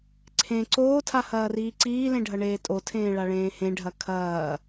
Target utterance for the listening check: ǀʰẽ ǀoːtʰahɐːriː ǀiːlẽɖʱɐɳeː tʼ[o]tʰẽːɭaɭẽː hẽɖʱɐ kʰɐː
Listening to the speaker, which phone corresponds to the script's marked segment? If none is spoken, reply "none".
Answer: o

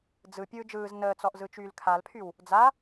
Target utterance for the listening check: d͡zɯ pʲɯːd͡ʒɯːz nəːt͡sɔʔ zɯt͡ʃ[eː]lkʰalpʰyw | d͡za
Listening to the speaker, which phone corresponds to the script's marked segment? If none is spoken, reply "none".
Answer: yː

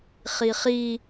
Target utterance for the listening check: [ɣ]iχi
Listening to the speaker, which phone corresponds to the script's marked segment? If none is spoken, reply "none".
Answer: χ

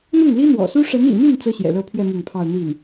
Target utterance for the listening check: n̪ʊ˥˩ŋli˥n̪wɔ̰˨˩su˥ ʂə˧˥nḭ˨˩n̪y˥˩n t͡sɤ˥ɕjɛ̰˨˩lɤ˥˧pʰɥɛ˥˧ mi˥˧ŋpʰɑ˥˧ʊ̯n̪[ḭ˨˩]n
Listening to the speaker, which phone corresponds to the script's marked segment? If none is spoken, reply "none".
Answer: i˥˩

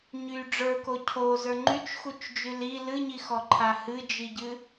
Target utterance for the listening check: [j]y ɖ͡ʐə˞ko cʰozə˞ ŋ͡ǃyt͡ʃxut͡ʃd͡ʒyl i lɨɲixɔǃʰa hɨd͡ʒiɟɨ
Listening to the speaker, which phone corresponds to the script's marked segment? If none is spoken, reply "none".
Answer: ɲ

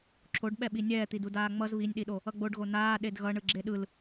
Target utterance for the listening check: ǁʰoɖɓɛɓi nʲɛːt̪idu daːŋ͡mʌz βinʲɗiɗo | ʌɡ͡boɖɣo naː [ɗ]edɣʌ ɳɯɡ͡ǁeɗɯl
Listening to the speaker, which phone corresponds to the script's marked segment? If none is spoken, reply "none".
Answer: ɗ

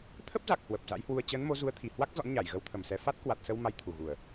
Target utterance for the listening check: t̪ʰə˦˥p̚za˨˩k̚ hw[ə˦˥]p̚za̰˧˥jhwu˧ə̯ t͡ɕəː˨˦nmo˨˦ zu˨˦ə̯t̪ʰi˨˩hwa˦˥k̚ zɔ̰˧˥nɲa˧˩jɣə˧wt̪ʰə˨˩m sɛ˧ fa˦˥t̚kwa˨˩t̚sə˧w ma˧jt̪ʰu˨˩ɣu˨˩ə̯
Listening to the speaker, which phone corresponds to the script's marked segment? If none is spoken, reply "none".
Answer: ə˨˩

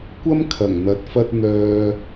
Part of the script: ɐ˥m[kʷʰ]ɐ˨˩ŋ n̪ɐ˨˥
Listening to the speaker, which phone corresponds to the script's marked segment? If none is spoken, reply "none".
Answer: kʰ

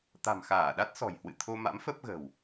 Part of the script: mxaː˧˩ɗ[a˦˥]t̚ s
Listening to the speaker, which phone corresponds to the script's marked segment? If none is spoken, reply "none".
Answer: a˦˥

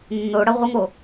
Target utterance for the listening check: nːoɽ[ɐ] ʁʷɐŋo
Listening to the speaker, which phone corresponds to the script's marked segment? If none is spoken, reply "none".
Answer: ɐ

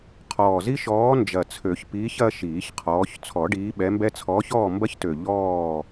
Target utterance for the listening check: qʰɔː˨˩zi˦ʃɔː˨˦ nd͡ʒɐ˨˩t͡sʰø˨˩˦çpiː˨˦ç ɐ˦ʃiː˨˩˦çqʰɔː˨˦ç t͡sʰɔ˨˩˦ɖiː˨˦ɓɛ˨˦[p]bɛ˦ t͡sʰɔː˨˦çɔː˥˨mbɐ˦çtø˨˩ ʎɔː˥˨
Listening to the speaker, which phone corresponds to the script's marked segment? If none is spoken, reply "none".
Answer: m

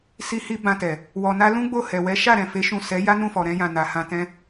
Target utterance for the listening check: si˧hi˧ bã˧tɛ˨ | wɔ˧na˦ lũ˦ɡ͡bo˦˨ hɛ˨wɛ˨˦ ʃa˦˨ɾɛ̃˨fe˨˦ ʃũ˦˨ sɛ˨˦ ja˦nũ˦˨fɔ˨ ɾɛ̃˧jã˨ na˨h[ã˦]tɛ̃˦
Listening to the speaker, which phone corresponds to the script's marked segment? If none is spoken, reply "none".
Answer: ã˧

